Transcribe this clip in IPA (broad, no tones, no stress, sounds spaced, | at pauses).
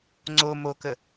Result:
ŋ͡ǀ o m o k ə